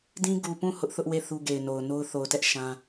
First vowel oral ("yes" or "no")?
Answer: no